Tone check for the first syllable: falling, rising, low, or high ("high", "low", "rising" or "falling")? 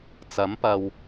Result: rising